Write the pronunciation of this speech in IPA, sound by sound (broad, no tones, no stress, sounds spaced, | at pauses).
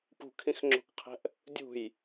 p ṳ kʰ ĩ x ŋ͡ǁ o̤ k qʰ ɛ̤ ʔ | dʲ ṳ j